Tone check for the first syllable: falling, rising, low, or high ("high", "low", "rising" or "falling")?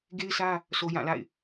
high